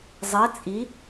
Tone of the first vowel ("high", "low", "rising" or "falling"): rising